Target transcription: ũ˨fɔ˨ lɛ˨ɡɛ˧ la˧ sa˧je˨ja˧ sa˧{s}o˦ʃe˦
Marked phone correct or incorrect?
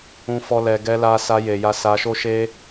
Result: incorrect